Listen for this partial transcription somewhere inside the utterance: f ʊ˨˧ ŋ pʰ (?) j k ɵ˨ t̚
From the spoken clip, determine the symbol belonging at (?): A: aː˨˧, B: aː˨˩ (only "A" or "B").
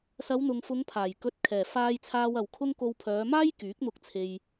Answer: B